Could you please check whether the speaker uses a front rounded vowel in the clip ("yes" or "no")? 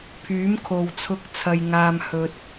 yes